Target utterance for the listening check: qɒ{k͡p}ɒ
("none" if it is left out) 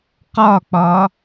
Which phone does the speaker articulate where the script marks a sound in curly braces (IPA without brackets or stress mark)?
k͡p